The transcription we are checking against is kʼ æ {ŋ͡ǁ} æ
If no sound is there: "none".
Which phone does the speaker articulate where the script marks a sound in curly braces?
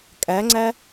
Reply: ŋ͡ǀ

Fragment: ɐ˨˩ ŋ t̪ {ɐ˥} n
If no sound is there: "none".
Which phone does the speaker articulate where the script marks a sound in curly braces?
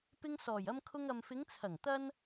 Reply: ɐ˥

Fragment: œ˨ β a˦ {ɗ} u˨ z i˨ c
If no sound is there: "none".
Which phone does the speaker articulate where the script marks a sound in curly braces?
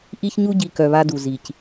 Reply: d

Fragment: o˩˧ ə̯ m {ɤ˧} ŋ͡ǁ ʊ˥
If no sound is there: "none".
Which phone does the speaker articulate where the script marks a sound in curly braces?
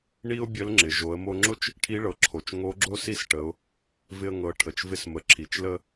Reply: o˧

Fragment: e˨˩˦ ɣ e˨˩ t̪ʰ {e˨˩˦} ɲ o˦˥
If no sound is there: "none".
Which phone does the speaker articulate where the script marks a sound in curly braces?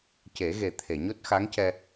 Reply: e˨˩˨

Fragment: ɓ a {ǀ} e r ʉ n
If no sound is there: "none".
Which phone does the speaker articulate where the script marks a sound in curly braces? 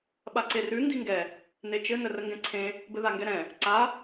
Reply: ǀ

